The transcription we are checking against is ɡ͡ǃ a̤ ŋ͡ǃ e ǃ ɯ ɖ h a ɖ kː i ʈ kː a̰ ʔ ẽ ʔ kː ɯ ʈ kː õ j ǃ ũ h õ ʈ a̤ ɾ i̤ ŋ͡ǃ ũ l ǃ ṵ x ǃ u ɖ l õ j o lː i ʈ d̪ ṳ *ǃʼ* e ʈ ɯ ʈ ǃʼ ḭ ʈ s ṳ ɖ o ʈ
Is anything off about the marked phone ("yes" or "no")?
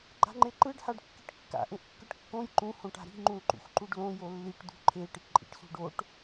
yes